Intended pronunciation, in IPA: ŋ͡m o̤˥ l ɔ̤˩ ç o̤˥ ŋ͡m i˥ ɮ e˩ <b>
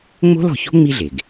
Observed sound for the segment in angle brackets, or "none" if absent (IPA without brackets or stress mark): ɡ